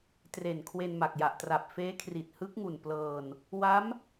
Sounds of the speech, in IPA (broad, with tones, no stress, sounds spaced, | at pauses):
t r e˨˩ n kʰ w e˧ n m a˨˩ k̚ j a˨˩ ʔ t r a˨˩ p̚ f eː˦˥ kʰ r i˨˩ t̚ h ɯ˦˥ k̚ ŋ u˨˩ n p l ɤː˧ n | w a˦˥ m